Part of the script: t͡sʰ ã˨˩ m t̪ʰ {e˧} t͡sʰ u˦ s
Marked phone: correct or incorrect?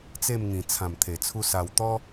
incorrect